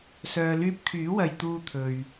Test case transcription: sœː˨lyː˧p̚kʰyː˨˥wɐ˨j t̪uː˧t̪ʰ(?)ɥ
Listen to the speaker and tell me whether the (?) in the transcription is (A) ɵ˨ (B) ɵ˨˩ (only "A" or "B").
A